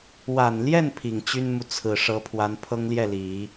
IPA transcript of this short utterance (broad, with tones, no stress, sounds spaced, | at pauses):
w a˨˩ n l j ɛ˥˩ n pʰ i˨˩ ŋ t͡ɕ y˥ n m u˨ t͡sʰ ɹ̩˨˩ ʂ ɤ˧˥ pʰ w a˧˥ n pʰ ɤ˥ ŋ l j ɛ˥˩ l i˨˩˦